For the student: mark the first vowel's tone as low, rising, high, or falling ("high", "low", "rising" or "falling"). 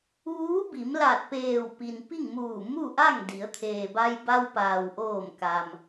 rising